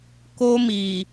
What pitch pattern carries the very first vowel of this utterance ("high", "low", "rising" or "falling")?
high